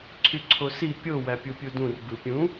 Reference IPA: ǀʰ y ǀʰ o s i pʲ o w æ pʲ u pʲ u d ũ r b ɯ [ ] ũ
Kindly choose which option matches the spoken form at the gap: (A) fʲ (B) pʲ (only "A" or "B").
B